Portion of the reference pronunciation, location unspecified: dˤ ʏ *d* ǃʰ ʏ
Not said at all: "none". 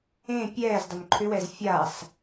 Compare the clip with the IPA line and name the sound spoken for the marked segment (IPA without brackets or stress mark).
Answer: n